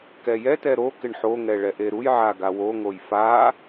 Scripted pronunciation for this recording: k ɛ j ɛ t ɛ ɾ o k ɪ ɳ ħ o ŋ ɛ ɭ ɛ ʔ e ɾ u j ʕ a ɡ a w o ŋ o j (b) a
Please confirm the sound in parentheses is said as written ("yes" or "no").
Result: no